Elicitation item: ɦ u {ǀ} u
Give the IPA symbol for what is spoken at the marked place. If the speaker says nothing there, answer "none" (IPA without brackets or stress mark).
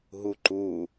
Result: ǃ